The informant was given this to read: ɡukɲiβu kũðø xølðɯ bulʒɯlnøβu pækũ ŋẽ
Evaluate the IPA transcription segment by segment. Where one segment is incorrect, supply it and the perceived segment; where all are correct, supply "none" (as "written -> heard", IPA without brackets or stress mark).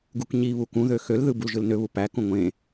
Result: ŋ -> ŋʷ